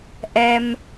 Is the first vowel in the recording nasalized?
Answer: no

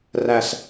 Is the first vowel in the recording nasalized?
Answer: no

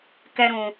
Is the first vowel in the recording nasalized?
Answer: no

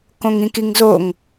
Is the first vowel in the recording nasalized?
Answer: yes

